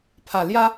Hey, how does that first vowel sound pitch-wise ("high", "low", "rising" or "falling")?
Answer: low